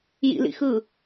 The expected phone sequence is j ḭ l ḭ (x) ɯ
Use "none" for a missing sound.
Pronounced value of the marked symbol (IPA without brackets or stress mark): x